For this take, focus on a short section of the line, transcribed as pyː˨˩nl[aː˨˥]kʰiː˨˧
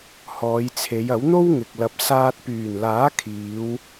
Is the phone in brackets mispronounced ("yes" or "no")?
no